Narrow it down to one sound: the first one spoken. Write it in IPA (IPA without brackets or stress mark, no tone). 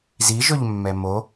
z